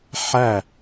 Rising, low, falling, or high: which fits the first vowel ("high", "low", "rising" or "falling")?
falling